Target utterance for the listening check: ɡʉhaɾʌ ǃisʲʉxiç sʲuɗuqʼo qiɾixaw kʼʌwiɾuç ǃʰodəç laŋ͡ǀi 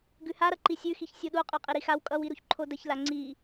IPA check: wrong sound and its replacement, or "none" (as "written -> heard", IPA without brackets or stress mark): q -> qʼ